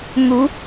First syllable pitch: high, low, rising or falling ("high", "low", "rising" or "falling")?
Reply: rising